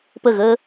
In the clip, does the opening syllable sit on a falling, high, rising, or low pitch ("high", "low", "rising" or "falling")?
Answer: falling